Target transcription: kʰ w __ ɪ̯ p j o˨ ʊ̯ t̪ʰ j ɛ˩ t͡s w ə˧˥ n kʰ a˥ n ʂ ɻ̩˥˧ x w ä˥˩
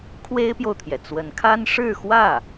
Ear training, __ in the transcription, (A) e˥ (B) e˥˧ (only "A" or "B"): A